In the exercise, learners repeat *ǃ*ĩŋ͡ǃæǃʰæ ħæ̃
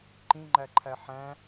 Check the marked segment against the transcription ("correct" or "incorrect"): correct